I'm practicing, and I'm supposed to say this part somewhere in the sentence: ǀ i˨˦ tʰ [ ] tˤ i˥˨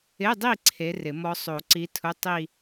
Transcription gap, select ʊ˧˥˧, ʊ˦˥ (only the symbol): ʊ˧˥˧